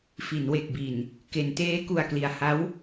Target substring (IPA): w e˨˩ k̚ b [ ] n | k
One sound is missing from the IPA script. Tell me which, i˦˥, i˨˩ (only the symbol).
i˨˩